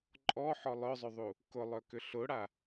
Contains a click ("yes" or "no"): yes